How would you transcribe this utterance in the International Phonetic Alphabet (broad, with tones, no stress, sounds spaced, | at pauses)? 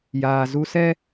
j aː˨ z u˧ s ɛ˦